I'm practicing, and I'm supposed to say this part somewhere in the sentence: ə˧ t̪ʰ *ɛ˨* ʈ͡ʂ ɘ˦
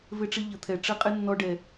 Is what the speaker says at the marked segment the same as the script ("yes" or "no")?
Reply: no